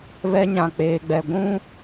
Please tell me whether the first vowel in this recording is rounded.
no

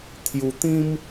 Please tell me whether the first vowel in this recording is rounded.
yes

